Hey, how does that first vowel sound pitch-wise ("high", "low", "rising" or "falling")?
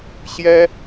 high